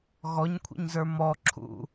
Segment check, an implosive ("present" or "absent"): absent